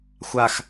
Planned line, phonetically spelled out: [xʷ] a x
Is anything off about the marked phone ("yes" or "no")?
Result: no